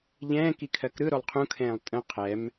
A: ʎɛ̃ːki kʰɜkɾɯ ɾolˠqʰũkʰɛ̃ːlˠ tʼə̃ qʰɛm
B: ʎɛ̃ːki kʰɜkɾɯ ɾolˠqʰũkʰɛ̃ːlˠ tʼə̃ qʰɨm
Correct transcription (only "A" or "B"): A